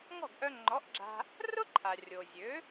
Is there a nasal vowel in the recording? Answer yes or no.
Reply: no